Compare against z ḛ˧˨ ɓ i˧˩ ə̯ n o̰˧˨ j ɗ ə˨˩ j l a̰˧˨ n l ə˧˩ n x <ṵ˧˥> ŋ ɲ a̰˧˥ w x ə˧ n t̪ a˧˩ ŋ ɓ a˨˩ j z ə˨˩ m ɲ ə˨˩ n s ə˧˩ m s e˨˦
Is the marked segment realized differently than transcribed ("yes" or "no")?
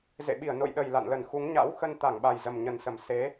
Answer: yes